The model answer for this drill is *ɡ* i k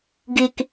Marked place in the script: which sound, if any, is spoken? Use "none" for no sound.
ɡ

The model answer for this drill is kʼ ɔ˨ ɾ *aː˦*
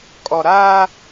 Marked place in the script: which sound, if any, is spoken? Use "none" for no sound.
aː˦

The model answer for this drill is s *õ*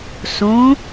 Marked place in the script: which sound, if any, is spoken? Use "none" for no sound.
õ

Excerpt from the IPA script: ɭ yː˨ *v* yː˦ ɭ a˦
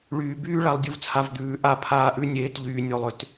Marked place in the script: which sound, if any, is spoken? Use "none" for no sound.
b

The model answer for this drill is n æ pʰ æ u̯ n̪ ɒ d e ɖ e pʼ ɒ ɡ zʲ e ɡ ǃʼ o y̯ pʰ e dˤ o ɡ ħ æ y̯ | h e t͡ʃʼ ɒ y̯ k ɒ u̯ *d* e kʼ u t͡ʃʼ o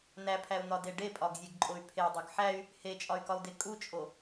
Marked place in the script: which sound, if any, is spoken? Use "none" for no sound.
d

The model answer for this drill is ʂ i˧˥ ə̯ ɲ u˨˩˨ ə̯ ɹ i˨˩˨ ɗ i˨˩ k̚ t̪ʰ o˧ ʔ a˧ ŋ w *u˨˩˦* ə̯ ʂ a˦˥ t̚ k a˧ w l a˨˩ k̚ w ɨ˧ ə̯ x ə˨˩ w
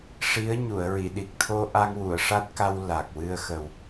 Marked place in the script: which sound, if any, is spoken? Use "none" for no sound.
u˨˩˨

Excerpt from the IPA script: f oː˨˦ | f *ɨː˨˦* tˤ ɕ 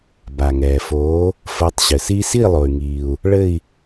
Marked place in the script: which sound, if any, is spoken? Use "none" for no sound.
əː˨˦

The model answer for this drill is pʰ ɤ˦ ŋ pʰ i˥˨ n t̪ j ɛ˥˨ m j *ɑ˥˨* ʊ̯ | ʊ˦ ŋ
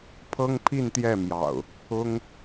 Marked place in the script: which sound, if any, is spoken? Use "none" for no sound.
ɑ̰˨˩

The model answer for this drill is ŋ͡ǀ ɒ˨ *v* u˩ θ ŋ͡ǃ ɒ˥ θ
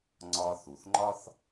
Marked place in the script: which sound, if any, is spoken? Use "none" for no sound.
θ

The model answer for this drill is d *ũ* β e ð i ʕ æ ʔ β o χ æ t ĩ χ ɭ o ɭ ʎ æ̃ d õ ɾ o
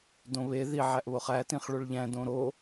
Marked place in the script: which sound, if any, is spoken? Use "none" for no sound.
õ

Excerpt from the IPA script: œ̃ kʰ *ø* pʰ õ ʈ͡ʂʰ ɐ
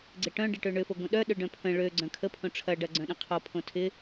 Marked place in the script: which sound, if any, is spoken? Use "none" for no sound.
ə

